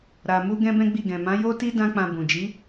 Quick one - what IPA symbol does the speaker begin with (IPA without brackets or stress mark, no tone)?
ɾ